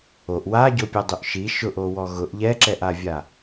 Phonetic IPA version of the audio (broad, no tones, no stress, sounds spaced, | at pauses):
o ʔ w a ɟ o pʲ ɛ dˤ u ʔ ʃ i ʃ ʊ ʔ o w ɔ ɣ ʊ ʔ ʎ ɛ ǁ ɛ ʔ a vʲ a